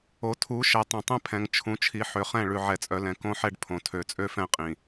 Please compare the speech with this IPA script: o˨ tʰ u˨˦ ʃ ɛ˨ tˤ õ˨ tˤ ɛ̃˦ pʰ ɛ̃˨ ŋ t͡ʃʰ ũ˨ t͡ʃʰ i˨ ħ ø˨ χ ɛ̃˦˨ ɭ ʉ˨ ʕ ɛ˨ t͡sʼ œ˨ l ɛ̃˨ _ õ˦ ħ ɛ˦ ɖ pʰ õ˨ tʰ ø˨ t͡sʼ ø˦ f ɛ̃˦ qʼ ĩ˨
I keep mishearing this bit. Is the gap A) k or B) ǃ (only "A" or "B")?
A